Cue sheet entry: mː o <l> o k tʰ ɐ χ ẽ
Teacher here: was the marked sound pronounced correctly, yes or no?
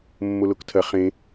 yes